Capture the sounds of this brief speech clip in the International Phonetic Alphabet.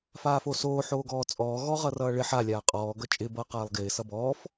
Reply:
f aː f o s oː ħ oː ɡ ɔː t͡sʼ ɔː ɣ ɔ ʁ ʌ r ʌː ɭ ɪ ħ a lʲ aː qʼ ɔː ɡ ʌ t͡ʃʼ ɪ b ʌː q aː lˠ ɡ ɪː s ʌ b ɔː f

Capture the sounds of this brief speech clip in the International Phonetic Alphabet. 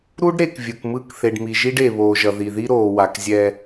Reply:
ɾ u˦ ɖ ɾ e˨ k vʲ ɯ˨ k m ɯ˦˨ k θ e˨ ɖ m i˨ ʒ i˦ ɖ e˨ β oː˨ ʒ ʌ˨ ð i˨ ð i˦ ɾ oː˨ w a˨ k zʲ ɛ˦

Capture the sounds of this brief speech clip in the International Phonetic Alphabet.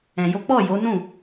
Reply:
ɛ̃˧ j o˦ k͡p ɔ˦˨ j o˨˦ n ũ˦˨

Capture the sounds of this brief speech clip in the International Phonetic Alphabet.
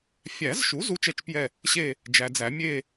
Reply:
fʲ æ˨˩˦ z ʃ u˩˥ z u˦ t͡ʃ ɛ˦˨ t͡ʃ p j ɛ˦˨ | ɕ e˦˨ | d͡ʒ æ˨ d͡z æ˨˩˦ mʲ e˦˨

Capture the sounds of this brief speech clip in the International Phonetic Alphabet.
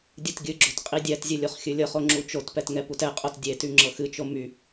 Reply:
dʲ ɨ t ɡʲ ɨ ɡ͡ǁ o t qʼ i dʲ ɛ t zʲ ɨ lʲ o χ xʲ ɨ lʲ ɤ χ o ŋ͡ǁ u t͡ʃ o t p ɛ t ŋ ɛ p u t ɛ qʼ o t dʲ e t y ŋ͡ǁ ɤ x ɨ t͡ʃ o m y

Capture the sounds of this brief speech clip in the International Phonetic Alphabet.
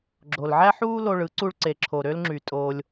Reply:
ɡ͡ǁ o˨ l ʕ æ˦ ħ uː˦ l o˧ ɭ ɯ˨˦ ǀ u˧ ɭ ǀ e˨ ǁʰ o˨ ɾ ø˦ l ŋ͡ǁ y˨ tʼ oː˧ lʲ

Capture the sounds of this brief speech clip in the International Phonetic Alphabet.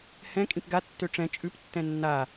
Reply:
h ɛ̃ kʼ ĩ p ɡ a tː ø ʈ͡ʂ ɛ̃ t͡ʃʼ ʉ p tː ɛ̃ nː a

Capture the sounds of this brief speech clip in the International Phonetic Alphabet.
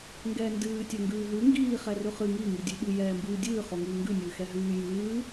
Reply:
ŋ ɡ ɛː n d ɨː tʲ ɛ ŋ ɡ ʉː ɦ ʉ ŋ ɡ iː χ ɛ r ʉ χ ɨ ŋ i ŋ i dʲ ʉ ɓ ɨ j ɛː m b ɨː dʲ ɨː χ o ŋ ɨː ŋ ɡ ʉ nʲ ɨː x ɛ ɦ ʉː j ɨː

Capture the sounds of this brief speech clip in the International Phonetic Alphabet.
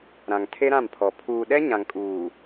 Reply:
ɾ ã˨ ŋ tʰ e˦ ɾ ã˦˨ m pʰ ɔ˨ pʰ uː˨ ɗ ɛ˦ ɲ ã˨ ŋ kʼ uː˨

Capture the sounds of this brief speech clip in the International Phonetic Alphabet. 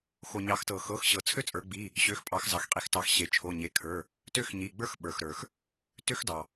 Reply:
x o˩ ɲ ɑ˩˧ x t ɤ˩ x ɤ˩˧˩ x ɕ ɤ˩ t͡sʰ ø˦ t͡sʼ ə˞˩˧ ɡ͡b i˩˧˩ | ɕ ø˩˧˩ x pʼ ɑ˩˧ x z ɑ˩ x qʼ i˩˧ x t ɑ˩˧ x ɕ e˩ t͡ʃʰ o˩˧˩ ɲ e˩˧˩ kʰ ə˞˩˧˩ | t ø˦ x ɲ i˩˧˩ ɡ͡b ə˞˦ x ɓ ə˞˩ x ɾ ə˞˩ x | t ø˦ x d ɑ˩

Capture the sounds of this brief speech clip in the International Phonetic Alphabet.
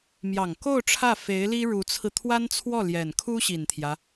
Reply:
m j ɑ˨˩ ŋ k o˥˧ ʊ̯ ʈ͡ʂʰ ä˥˩ f e˧˥ ɪ̯ l i˥ ɻ u˧˥ t͡sʰ ɹ̩˧ t̪ʰ w a˥ n t͡sʰ w ɔ˥˩ l j ɛ˨˩ n kʰ u˥ ɕ i˨˩ n t̪ʰ j ä˦

